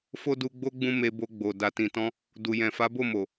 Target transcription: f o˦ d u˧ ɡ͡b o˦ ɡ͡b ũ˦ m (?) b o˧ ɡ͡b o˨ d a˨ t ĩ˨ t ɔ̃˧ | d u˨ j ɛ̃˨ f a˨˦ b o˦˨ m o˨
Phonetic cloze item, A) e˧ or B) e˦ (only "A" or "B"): A